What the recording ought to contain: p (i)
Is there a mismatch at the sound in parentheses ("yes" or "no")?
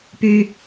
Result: yes